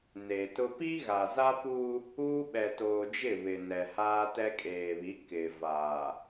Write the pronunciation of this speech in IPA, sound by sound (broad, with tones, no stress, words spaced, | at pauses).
ne˨tʊ˦ pi˦ɣa˨za˦puː˦ | uː˦ɓɛ˨toː˨d͡ʒɪ˦˨ βɪ˨nɛ˨haː˦tɛ˦ kʼeː˨βi˨˦ kɪ˨vaː˨